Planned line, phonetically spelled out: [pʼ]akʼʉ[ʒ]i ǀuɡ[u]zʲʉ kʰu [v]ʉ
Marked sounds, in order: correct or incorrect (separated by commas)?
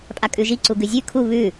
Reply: correct, correct, incorrect, incorrect